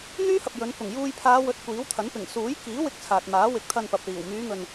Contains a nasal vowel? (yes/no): no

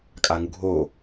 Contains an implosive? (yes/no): no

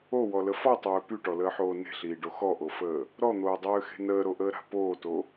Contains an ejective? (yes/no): no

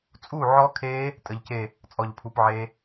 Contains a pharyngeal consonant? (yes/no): yes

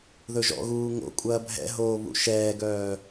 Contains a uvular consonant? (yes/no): no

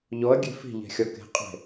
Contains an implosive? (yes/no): no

